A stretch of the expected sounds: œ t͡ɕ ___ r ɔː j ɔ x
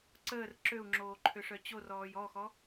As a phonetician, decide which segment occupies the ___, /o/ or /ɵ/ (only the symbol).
o